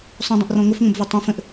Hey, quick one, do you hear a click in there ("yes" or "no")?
no